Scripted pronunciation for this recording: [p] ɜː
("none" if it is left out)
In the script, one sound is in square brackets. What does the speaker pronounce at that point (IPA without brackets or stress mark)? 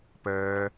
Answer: p